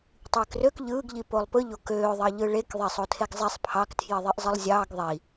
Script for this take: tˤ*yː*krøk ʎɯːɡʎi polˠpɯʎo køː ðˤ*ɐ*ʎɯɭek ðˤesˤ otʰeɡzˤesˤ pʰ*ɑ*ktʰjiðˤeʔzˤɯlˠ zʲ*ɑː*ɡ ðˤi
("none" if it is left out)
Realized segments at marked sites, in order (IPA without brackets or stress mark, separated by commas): yː, ɑ, ɑ, ɑː